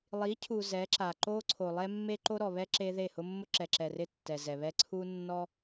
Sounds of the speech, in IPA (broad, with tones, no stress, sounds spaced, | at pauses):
lˠ i˨˦ cʰ u˨ z ɛ˨˦ ǁ a˨ ǃ o˦ ǀʰ o˨ lˠ ɛ˦ mː e˦ ǃ o˦ ɾ ɔ˨ β ɛ˦ ǁ e˦ ð e˦˨ h ʊ˦ mː ʊ˦ ǁ ɛ˨ ǁ ɛ˨ r ɪ˦ tː ɛ˨ z ɛ˨ β ɛ˦ ǀʰ u˦ nː ɔ˦